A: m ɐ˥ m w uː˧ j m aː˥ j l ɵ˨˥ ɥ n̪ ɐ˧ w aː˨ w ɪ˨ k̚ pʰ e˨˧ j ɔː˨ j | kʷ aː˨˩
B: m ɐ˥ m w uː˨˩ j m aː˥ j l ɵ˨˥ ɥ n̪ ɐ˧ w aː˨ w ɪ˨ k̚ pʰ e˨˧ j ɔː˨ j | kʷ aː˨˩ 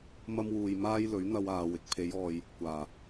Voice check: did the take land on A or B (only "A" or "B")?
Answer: A